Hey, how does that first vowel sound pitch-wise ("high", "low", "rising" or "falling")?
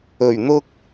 low